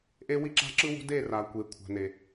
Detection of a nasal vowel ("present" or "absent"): absent